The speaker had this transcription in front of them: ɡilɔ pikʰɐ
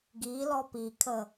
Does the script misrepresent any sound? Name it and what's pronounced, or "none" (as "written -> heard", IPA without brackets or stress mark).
ɐ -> ə